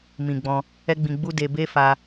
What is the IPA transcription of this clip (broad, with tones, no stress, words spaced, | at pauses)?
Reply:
mĩ˨ɡ͡bɔ̃˧ | ɛ˦ɡ͡bĩ˧ɡ͡bu˦ de˧be˦ fa˧